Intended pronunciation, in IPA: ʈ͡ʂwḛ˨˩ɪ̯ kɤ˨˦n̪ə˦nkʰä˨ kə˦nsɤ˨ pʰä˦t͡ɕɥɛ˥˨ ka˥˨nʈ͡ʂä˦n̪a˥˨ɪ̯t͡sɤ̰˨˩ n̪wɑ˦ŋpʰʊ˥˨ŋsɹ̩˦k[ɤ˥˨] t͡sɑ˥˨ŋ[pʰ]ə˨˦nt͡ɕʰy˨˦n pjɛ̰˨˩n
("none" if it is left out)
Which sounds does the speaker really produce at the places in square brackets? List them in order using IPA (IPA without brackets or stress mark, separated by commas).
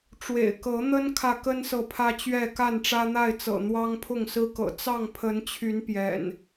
ɤ̰˨˩, pʰ